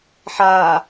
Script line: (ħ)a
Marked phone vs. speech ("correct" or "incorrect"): correct